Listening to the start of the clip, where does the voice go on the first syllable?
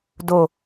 low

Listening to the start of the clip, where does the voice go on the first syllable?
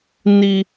high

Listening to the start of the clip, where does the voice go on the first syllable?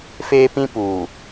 high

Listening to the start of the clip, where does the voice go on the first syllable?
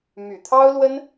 low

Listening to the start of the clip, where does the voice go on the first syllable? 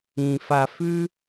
low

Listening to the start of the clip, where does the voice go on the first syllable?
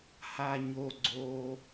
low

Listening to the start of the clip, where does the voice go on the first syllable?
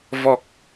low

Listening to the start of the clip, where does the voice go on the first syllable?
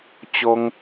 high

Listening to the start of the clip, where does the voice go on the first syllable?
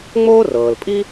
high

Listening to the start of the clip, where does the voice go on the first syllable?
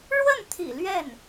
falling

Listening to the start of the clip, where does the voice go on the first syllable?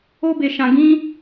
high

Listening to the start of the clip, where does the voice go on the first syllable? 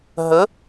rising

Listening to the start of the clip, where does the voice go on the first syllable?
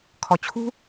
low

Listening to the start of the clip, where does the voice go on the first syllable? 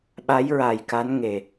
rising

